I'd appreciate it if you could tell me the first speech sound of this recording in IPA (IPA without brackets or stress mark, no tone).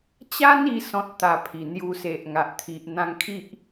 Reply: t͡ɕ